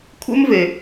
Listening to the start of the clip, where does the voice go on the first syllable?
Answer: high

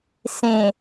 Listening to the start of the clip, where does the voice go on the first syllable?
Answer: low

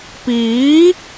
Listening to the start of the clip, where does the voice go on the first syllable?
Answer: rising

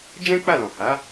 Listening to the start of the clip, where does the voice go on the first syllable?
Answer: high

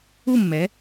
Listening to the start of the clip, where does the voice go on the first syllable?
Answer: falling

